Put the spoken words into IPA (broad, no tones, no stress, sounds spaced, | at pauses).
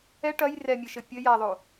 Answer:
ɛ ʈ ɐ j r ɛ mʲ ɘ ʃ ɘ pʲ ɘ j a ðˤ o